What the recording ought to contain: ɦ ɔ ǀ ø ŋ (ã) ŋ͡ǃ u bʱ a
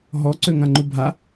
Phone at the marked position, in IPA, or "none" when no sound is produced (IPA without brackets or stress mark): ã